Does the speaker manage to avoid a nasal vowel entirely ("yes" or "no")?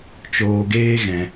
no